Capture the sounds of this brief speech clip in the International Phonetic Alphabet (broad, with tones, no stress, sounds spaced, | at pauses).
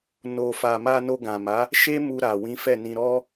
n o˨ f a˨ m a˧ n o˧ ɡ ã˨ m a˨˦ | ʃ e˦ m u˧ ɾ a˨ w ĩ˨˦ f ɛ˦˨ n ĩ˧ ɾ ɔ˦